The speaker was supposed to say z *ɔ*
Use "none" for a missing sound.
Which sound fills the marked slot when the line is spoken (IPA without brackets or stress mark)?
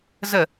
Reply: ə